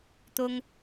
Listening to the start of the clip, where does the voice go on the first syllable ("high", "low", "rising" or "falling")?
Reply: high